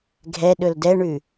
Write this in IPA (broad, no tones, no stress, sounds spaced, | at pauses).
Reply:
ɡʱ ɛ ɗ ɵ l d ɛ ɳ ʉ